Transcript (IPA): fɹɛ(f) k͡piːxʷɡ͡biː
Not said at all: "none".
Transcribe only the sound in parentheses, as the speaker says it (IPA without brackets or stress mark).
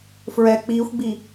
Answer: none